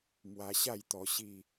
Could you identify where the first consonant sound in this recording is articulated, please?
labial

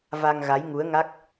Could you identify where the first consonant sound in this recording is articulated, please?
labial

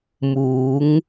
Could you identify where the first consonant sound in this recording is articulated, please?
labial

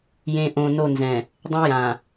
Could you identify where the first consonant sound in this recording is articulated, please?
palatal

